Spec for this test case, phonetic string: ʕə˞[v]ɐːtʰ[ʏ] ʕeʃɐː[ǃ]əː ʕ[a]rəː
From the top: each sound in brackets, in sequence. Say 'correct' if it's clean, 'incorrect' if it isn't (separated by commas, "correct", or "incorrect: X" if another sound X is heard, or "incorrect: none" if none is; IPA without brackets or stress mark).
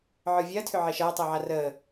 incorrect: vʲ, correct, incorrect: tˤ, correct